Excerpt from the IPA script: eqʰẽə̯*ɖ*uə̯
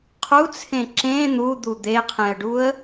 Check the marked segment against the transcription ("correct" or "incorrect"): correct